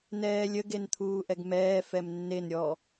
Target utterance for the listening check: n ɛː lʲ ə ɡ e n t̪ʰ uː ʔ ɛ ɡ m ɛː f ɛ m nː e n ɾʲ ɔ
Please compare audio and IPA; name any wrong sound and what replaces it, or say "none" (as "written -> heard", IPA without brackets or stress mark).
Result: none